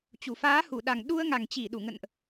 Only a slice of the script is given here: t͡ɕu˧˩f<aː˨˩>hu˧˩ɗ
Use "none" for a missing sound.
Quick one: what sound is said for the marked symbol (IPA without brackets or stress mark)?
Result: aː˨˦